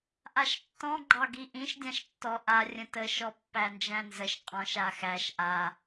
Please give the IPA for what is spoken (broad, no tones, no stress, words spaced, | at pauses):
ʔaʃtːɔ̃ ɡ͡ǃɑɡiʔĩʃ dʲãʃtːɔ ʔa rʲə̃tə ʃɔpːænd͡ʒæ̃nzəʃ qʼɔ̃ʃ axæʃ ʔa